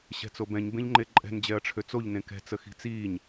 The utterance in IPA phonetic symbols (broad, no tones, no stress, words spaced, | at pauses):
ɕɛ̤t͡sobɛ̃ɲ bẽʎŋ͡ǃeǃʼɛ̤n d͡ʑɛɐ̯ʈ͡ʂʰøt͡soʎ nẽkɛ̤ t͡səxi̤t͡siːɲ